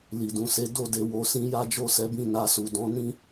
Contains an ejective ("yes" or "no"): no